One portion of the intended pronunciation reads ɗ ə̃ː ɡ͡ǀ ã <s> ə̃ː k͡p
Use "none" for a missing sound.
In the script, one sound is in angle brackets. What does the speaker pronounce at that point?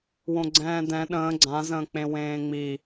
z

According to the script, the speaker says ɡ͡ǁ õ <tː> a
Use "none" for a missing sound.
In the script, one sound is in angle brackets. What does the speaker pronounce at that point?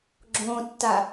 tː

